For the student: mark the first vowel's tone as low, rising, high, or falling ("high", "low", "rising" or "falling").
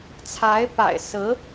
rising